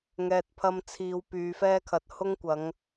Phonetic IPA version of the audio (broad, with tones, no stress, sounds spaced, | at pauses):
ŋ ɛː˨ t̚ pʰ ɐ˧ m t͡sʰ iː˧ w p yː˨ f ɛː˥ kʰ ɐ˨ t̚ h ʊ˥ ŋ kʷ ɐ˨˧ ŋ